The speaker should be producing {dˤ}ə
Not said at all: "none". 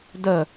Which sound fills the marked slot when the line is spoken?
d̪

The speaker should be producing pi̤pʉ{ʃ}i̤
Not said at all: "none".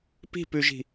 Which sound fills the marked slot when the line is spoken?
ʒ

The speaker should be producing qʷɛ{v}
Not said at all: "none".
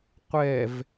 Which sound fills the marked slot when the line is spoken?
v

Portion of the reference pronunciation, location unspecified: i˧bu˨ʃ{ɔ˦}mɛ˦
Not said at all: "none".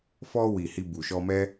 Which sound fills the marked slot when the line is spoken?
ɔ˧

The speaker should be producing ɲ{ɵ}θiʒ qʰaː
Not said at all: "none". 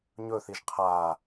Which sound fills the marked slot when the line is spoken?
ɵ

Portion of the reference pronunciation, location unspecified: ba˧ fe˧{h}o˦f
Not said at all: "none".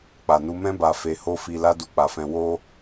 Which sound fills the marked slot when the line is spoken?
h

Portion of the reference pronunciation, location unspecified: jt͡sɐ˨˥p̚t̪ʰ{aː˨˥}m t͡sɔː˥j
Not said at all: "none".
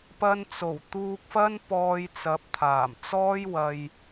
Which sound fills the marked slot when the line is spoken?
aː˨˩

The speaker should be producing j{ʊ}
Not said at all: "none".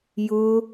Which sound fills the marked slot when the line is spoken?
ʊ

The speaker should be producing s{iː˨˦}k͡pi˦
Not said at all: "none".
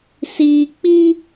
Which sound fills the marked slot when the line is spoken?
iː˨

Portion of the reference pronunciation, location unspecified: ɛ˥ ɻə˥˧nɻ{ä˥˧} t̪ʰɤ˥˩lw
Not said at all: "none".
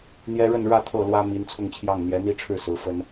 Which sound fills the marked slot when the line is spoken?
ä˥˧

